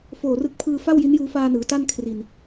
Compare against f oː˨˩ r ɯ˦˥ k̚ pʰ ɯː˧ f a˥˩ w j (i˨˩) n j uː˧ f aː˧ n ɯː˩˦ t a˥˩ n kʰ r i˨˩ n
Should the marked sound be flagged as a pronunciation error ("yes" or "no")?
yes